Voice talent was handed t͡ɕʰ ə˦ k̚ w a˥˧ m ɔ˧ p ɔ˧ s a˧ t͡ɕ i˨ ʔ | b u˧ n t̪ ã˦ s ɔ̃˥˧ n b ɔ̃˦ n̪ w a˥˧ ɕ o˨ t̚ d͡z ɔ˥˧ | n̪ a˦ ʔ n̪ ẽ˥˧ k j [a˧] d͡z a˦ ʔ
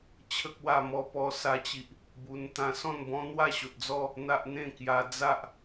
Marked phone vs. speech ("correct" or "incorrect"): correct